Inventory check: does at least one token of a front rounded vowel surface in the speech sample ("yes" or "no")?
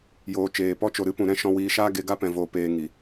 no